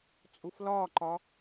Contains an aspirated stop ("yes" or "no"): no